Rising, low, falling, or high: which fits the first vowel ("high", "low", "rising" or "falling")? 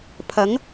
rising